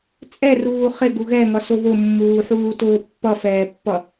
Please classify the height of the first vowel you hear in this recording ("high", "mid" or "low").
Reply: mid